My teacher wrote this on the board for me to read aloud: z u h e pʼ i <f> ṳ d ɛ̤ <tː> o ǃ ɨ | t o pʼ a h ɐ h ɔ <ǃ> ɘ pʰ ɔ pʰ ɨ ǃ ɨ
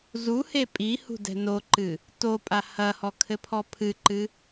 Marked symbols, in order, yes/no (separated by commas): no, no, no